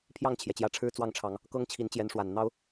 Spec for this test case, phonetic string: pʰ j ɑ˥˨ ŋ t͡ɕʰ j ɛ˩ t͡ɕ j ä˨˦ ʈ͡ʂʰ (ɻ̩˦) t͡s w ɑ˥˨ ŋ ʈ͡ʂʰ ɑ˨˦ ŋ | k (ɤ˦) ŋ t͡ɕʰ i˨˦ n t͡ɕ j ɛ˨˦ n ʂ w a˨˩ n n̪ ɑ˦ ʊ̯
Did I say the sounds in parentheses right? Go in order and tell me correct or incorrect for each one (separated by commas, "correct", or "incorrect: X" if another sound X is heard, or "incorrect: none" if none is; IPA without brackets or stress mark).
correct, correct